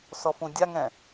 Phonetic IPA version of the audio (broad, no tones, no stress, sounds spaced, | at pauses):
s ɔ f ũ dʲ a ŋ ɛ̃